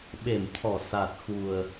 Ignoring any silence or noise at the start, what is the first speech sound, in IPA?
ɓ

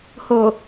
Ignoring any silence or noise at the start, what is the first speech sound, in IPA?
h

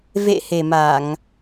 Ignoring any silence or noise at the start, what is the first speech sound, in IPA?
v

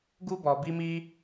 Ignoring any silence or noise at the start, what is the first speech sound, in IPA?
ɡ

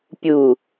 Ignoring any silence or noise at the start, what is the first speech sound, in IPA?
pʲ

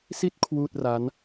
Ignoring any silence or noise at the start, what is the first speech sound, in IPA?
s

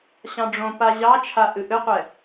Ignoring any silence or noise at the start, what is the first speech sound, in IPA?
ɕ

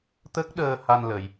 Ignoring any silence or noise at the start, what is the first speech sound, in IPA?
t̪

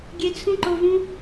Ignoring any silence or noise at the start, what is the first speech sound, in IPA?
ɡʲ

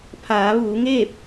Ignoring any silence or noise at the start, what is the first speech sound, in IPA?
pʰ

